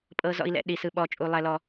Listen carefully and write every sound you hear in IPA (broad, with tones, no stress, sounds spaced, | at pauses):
pʼ ɤ˩ z ɔ̰˩ i̯ l ɛ̰˩ ɗ i˩ s ɯ˩ ɓ ɔ˩ t͡ʃʼ u˩ lˠ ɛ˩ l ɔ˩